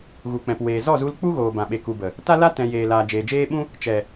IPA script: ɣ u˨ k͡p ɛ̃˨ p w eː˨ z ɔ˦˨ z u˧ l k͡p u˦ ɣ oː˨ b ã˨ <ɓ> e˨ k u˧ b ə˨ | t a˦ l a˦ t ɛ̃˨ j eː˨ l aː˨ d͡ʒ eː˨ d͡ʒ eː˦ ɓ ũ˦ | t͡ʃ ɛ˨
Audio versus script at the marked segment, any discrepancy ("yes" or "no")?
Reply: no